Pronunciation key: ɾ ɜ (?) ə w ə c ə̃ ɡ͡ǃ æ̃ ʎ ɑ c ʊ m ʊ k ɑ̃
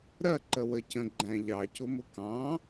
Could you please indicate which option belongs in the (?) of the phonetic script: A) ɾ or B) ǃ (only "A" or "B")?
B